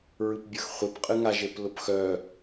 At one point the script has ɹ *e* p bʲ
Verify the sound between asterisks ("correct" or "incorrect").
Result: incorrect